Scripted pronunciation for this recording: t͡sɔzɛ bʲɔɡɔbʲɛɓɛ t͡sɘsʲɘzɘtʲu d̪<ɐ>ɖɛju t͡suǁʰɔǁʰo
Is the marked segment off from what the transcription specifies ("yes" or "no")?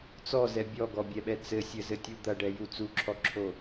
no